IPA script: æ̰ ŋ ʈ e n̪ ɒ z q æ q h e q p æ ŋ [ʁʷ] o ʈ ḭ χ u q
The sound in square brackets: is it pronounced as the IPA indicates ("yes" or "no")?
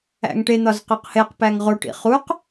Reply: no